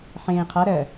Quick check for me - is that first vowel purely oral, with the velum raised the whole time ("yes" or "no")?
no